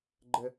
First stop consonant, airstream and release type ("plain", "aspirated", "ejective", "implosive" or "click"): click